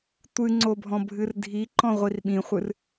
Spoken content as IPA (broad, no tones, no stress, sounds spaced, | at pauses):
tʷ ɨ ŋ͡ǀ o bʱ ɔ̃ bʱ ɨ r dʱ i ǃ ɔ̃ ʁʷ i r ɓ ĩ χʷ ɨ r